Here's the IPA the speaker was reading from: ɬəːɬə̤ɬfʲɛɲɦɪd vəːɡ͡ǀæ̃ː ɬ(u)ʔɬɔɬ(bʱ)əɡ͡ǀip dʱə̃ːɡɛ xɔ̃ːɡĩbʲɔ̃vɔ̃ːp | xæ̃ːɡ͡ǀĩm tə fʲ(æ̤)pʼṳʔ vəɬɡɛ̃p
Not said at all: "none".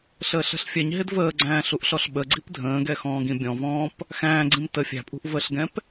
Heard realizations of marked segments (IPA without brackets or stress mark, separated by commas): u, ɓ, æ̤